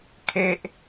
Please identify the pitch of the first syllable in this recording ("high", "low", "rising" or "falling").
low